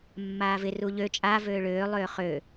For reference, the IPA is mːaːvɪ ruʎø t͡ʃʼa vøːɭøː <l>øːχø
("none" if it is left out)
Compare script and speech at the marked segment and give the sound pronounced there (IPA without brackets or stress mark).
lˠ